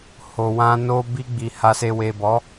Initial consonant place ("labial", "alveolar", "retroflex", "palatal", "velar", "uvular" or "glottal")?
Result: glottal